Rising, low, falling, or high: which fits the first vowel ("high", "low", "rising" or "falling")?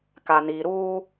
low